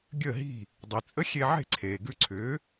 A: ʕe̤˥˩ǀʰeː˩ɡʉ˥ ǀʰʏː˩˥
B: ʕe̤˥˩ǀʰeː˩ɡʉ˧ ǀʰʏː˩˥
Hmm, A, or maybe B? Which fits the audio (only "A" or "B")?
B